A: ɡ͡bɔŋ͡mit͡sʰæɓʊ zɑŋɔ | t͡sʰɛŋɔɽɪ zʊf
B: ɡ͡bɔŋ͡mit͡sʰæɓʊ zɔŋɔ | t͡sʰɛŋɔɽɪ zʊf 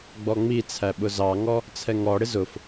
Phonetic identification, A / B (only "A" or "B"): A